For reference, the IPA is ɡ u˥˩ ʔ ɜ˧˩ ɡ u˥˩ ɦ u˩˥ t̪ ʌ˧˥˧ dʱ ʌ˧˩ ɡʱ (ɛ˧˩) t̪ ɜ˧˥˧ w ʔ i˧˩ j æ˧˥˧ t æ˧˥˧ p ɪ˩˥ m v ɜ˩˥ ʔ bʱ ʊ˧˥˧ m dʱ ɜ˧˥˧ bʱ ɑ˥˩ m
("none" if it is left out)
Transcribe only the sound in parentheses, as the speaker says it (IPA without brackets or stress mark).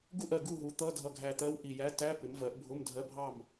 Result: æ˧˩